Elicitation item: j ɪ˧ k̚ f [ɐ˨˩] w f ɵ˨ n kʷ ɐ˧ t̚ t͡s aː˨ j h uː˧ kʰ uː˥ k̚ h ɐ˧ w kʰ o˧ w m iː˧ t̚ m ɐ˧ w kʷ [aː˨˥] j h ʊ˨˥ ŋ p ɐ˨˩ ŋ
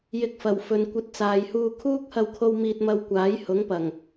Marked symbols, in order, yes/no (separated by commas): yes, yes